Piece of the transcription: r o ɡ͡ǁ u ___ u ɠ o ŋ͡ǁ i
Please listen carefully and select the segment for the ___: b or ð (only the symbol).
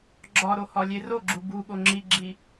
b